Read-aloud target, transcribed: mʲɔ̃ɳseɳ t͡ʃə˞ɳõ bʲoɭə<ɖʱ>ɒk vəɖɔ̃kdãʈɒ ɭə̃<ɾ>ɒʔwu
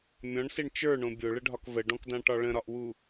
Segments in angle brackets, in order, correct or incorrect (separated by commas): correct, correct